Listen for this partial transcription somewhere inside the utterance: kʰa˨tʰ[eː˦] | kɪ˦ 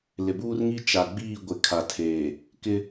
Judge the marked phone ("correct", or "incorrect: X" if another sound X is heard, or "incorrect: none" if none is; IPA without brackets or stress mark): incorrect: eː˨